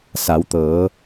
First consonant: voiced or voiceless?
voiceless